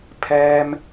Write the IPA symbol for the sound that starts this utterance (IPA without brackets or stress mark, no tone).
pʰ